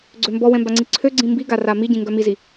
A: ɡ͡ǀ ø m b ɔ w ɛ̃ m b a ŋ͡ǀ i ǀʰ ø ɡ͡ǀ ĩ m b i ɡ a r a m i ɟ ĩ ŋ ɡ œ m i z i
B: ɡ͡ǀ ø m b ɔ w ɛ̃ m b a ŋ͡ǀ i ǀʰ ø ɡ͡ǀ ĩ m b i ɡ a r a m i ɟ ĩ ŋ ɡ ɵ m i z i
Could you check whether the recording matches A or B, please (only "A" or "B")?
A